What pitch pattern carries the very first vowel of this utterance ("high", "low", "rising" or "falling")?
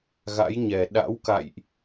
rising